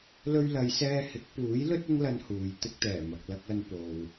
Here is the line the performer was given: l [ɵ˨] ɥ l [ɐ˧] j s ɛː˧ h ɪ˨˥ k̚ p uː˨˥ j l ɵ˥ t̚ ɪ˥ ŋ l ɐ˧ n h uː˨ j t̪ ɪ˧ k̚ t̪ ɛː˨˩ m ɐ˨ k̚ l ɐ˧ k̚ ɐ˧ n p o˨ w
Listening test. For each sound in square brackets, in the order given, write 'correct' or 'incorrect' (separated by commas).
incorrect, incorrect